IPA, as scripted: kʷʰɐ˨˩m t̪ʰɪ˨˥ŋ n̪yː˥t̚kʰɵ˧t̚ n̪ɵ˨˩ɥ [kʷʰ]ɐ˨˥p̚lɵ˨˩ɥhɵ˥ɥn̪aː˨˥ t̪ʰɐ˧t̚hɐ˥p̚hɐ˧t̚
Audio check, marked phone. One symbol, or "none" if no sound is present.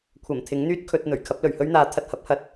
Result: kʰ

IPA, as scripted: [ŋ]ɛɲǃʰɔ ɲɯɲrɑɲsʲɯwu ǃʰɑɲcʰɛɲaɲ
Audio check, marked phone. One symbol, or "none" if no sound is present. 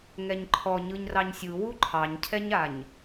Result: ŋ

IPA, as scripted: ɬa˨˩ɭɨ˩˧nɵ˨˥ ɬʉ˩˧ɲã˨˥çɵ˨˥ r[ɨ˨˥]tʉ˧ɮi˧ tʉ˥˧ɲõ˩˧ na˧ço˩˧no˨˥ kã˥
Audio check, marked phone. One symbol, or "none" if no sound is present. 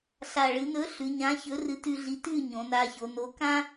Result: ɨ˨˥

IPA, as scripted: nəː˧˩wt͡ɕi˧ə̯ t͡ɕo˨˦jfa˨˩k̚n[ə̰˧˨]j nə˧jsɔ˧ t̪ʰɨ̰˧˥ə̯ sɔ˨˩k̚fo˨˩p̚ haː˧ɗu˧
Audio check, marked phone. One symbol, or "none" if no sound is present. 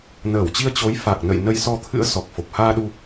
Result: ə̰˧˨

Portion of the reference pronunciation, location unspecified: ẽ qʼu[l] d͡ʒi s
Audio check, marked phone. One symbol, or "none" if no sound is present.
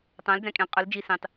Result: l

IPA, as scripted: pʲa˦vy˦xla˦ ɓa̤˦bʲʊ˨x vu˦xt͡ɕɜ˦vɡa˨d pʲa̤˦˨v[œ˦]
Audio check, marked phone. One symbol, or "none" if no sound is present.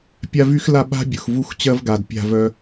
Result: œ˦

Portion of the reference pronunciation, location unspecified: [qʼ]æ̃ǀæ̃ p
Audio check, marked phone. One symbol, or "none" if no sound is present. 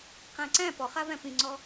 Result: q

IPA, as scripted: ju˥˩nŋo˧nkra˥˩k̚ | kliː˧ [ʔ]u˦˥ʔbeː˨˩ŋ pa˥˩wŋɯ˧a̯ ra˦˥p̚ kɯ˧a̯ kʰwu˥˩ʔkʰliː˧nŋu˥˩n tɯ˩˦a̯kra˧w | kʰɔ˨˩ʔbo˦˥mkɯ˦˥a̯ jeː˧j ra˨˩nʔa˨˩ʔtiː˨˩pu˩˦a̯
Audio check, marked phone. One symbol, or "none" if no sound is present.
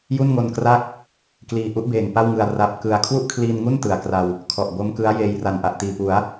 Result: ʔ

